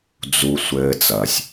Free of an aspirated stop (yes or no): yes